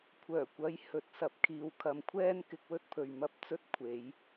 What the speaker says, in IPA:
kʷʰ œː˨˩ kʷ ɐ˨˥ j h ɵ˨˥ t̚ s ɐ˧ p̚ kʰ iː˨ w kʰ ɐ˨ m kʷʰ ɛː˥ n k ɪ˧ k̚ w ɵ˥ t̚ pʰ ɵ˨ ɥ m ɐ˥ p̚ t͡s ɵ˥ t̚ kʷʰ e˨˧ j

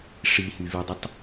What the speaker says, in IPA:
ʂ i h y v i dˤ ə tˤ

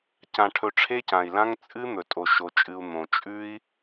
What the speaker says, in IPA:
c ã˧ ʈʰ ɵ˧ ʈ͡ʂʰ e˦ c ã˨ i̯ l ã˦ ŋ t͡sʼ ɨ˦ n̪ ɵ˨ tʼ o˨ ʃ o˨ t͡ʃʼ ɨ˨ u̯ n̪ õ˨ t͡ʃʼ ʉ˦ i̯

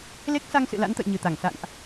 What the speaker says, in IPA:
l e˦˥ k̚ s a˧ ŋ s ɨ̰˧˨ l a̰˧˥ n t̪ ə̰˧˨ j ɲ ɨ˨˩ t̪ a˧˩ ŋ s a̰˧˨ n ʔ

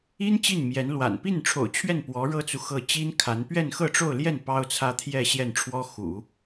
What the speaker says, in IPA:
i˥ n t͡ɕ i˥˩ n m j ɛ˧˥ n l w a̰˨˩ n p i˥˩ n ʈ͡ʂʰ o̰˨˩ ʊ̯ t͡ɕʰ ɥ ɛ˥˩ n p w ɔ˧˥ ɻ ɤ˥ t͡s u˨ x ɤ˥˩ t͡ɕ i˥ n kʰ a˧˥ n p ɥ ɛ˥˧ n x ɤ˥˧ ʈ͡ʂ o˥˧ ʊ̯ l j ɛ˥˩ n p ɑ˥ ʊ̯ t͡sʰ ä˥ t̪ʰ j ɛ˥˧ ɕ j ɛ˥˩ n ʈ͡ʂʰ w ɔ˥ x ṵ˨˩˦

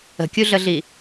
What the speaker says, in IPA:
ə̤ kʲ u ɮ ə ɮ i

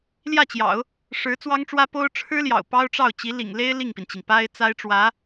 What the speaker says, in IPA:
l j ä˥˩ t͡ɕ j ɑ̰˨˩˦ ʊ̯ | ʂ ɻ̩˧˥ t͡s w ɑ˥ ŋ ʈ͡ʂ w ä˥ p o˥ ʊ̯ ʈ͡ʂʰ ɻ̩˥ l j ɑ̰˨˩ ʊ̯ p ɑ˥ ʊ̯ ʈ͡ʂ ɑ˥˩ ʊ̯ t͡ɕ i˧˥ l ḭ˨˩ ŋ l e˥ ɪ̯ l i˥˩ ŋ p i˩ n t͡ɕ i˩ ŋ p a˥ ɪ̯ t͡s a˥ ɪ̯ ʈ͡ʂ w ä˧˥

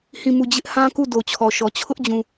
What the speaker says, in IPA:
h ĩ˦˨ m u˦˨ d͡ʑ ɪ˦ ʔ h ã˦ k u˦˨ d o˨ t͡ɕʰ ɔ˨ ʃ ɔ˨ t͡ɕʰ ʊ˦ ʔ d͡ʑ ũ˨

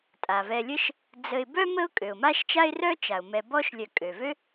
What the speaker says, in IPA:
tʼ a˩ v ɛ˨ lʲ ə˦ ʃ | d͡z ə˨ ɪ̯ b œ˥ m ə˦ ʊ̯ kʼ ø˩ ʊ̯ m a˥ ʃ t͡ʃ a˥ ɪ̯ r œ˥ t͡ʃ a˩ ʊ̯ m ɛ˨ b ɔ˥ ʃ lʲ œ˨ kʼ ø˩ v ø˥

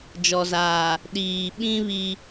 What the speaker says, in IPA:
d͡ʒ ɔ˨ z aː˨ | ɗ iː˨ ɓ ĩ˦ β i˦

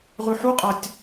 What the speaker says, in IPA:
ʁ ʉ ħ u qʼ a tʲ

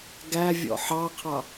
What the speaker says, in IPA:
ɡ æ vʲ ɔ̰ ħ ɑ qʰ ɑ

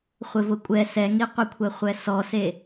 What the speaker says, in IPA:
χʷ ɪ v ʊ kʷʼ ɛ s ɛ ŋ i qʷ ɪ kʷʰ ɛ χʷ ɛ s ɔ s e

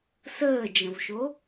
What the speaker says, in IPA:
s əː d͡ʒ ə̃ v ʃ o

